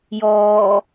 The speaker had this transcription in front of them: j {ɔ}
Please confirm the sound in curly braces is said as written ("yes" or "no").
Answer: no